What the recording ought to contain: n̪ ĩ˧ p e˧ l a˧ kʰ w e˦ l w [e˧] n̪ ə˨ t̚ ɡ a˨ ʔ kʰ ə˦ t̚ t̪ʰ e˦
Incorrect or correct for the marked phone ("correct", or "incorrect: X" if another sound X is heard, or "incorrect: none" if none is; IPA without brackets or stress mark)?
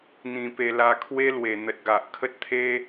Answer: incorrect: e˨˩